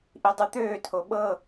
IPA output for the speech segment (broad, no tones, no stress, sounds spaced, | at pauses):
ʔ i dˤ ʉ t̪ øː tʰ o ɓ ɤ